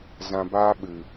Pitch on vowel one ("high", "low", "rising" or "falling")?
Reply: low